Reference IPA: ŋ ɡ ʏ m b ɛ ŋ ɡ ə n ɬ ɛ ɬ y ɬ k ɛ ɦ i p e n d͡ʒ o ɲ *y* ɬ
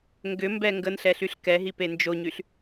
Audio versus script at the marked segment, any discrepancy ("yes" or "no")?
no